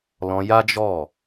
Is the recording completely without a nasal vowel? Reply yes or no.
no